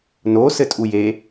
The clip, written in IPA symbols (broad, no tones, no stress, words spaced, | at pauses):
no sɘtʼuje